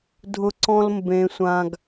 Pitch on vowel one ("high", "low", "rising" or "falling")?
high